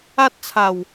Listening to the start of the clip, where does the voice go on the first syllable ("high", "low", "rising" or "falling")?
high